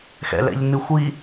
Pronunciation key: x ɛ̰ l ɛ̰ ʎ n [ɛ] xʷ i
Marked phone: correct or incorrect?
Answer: incorrect